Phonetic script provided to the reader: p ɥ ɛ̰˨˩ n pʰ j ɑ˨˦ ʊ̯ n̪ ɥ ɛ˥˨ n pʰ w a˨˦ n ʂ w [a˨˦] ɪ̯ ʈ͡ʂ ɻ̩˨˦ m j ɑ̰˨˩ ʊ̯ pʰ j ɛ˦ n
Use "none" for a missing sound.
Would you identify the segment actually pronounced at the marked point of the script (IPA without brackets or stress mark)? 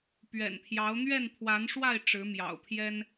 a˥˨